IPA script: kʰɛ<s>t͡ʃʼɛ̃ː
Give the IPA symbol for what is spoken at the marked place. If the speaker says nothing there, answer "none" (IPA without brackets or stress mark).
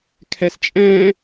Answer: s